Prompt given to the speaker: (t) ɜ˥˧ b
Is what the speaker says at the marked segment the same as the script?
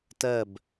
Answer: yes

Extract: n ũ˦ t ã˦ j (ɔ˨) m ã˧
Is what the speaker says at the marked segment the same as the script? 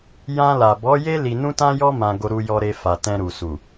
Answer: no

